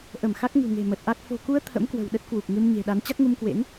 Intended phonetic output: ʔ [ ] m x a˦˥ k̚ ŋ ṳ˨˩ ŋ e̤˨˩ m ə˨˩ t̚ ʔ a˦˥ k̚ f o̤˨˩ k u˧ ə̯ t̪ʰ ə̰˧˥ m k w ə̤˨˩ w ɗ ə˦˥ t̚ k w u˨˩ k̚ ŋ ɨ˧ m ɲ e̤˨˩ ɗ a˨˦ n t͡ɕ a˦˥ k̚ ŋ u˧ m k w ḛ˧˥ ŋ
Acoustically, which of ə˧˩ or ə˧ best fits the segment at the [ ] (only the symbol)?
ə˧˩